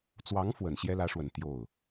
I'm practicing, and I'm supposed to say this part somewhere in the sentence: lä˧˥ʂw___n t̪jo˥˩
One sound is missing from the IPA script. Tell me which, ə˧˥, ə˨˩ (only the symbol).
ə˨˩